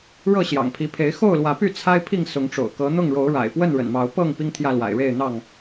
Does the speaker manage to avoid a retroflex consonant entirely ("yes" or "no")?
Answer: no